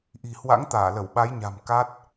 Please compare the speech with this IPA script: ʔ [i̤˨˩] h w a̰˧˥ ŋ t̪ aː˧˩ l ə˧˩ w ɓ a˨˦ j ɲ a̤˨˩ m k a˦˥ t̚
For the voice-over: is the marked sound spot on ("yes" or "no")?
yes